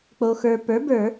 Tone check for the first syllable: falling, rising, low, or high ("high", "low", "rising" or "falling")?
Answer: low